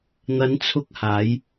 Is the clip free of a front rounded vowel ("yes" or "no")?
yes